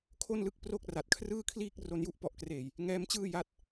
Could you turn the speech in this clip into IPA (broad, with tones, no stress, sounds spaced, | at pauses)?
kʰ o˥˩ n l ɯ˦˥ k̚ p r o˥˩ k̚ r a˨˩ t̚ kʰ r ɯː˥˩ kʰ l iː˥˩ k̚ r o˧ n j u˦˥ ʔ p ɔ˨˩ ʔ k r eː˨˩ j | ŋ ɛː˦˥ m t͡ɕ ɯː˥˩ j a˦˥ t̚